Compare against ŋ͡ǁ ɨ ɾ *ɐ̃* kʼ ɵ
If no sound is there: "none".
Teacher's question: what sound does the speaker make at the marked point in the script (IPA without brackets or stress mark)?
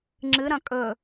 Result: ɐ̃